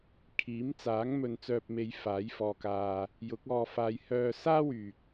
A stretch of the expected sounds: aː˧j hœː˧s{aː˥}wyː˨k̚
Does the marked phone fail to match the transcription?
no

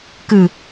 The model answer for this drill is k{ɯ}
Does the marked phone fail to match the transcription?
no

